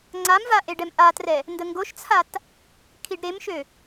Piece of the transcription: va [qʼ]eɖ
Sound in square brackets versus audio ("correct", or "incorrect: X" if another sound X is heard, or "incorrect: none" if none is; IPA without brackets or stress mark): incorrect: ʔ